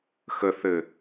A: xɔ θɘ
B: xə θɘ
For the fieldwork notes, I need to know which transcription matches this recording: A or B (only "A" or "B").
B